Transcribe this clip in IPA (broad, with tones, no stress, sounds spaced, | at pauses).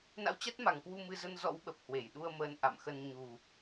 n a̰˧˥ w t͡ɕ a˦˥ t̚ m a˨˩ ŋ k w u˧ m ɨ˧ z ə˧ n z ɔ̰˧˥ w ɓ ə˨˩ p̚ h w e˧˩ j ɗ u˧ ə̯ m əː˨˦ n ʔ a̰˧˨ m x ə˧ n ɲ u˨˩